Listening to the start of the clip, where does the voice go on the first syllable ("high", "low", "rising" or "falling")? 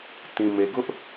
low